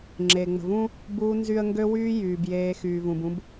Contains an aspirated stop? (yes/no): no